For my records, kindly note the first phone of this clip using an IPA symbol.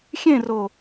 xʲ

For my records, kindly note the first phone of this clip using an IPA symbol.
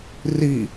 r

